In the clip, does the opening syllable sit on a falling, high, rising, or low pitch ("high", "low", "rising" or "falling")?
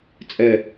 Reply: low